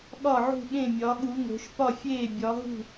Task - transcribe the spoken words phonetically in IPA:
ɠ ɒ˥˨ ʕ ṳ˥˨ ɠ ẽ˥˨ mʲ ɒ˨˦ ɠ u˨˦ ŋ o̤˨˦ ʃ p ɒ˥˨ fʲ eː˥˨ bʲ ɒ˨˦ ɦ ṳ˥˨

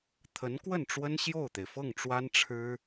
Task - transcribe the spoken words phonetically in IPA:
t̪ʰ ə˧˥ n k w ə˥˩ n ʈ͡ʂ w ə˥ n ɕ j o˥˩ ʊ̯ t̪ e˩ ɪ̯ f ɤ˥˩ ŋ ʈ͡ʂ w a˥ n ʈ͡ʂʰ ɻ̩˥

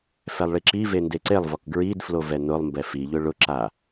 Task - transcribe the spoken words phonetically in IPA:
f ɛ lˠ ɭ i ǁ i v e n d e ǀ e lˠ v ɔ k ɡ ɹ i d f l o v ɛ n ʊ lˠ m b ɛ f i ʎ ʊ ɭ ʊ ǁ a

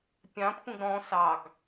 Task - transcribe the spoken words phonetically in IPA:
pʲ ɑ̃ kʷʰ ẽ ɡ ɾ ɔ̃ s ɑ ɡ

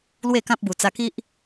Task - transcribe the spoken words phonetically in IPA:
l w e˥˧ k ã˦ p̚ b u˨˩ t͡s a˧ k i˦ ʔ

